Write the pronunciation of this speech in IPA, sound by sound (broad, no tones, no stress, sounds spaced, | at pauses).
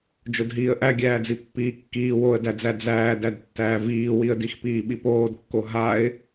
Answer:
d͡ʒ o d ɦ iː ə̯ ʔ æ ɡʲ æː d͡z i pː iː kː iː w o ə̯ d æ d͡z æ d͡z æː d æ d tː æː v iː w i ə̯ d i x p iː ɓ i p oː d kː o ɦ a ɪ̯